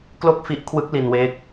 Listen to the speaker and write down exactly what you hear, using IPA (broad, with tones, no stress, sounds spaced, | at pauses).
k l o˥˩ k̚ f i˦˥ ʔ kʰ w ɯ˦˥ k̚ l i˧ n w eː˦˥ k̚